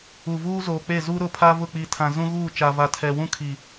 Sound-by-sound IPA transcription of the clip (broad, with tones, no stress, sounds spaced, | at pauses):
u˨ v uː˦ z oː˨ k͡p e˦˨ z u˦ ɾ ʊ˦˨ pʰ a˦ v ʊ˦˨ k͡p i˨ tʰ ã˨ z ũ˦ ɣ uː˦˨ t͡ʃ a˨ v a˨ tʰ ɛ˨ w ũ˦ kʰ i˨